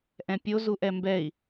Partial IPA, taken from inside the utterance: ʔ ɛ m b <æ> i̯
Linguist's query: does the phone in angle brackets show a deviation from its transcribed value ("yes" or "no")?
yes